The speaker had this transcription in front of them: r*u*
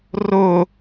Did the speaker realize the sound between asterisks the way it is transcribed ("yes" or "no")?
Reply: no